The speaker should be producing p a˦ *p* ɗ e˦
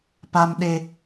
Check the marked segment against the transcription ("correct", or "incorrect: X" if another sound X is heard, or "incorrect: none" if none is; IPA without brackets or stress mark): incorrect: m